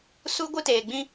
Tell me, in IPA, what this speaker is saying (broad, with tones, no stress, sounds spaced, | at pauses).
s u˦ ɡʷ ɨ˦ t eː˨ ɡ͡b ĩ˦